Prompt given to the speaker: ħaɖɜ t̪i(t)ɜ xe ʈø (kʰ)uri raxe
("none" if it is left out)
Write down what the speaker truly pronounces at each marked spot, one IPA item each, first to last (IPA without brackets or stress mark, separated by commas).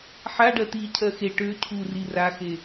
cʰ, cʰ